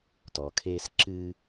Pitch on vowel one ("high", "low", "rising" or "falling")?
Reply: low